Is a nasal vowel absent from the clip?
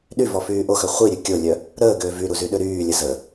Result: yes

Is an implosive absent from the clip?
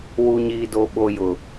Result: no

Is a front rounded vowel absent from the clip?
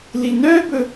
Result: no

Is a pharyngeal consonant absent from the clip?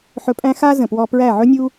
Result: no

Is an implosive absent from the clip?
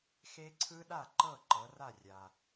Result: no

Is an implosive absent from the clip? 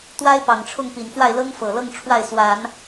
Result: yes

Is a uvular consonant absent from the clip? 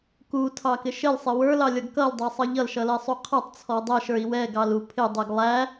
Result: no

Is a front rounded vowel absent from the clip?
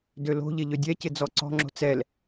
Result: no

